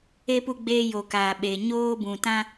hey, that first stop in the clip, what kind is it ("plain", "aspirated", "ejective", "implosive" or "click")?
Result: plain